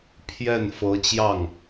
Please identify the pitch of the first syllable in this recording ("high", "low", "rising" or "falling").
falling